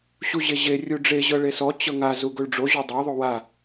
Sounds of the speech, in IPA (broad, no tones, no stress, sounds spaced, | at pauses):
ɕ u ʑ e ʑ e rʲ u ɖ͡ʐ e ʑ ɤ ɭ e s ɔ t͡ɕ ɤ ŋ a z u ɡ o ɭ ɖ͡ʐ o ʑ o dˤ a ðˤ o w a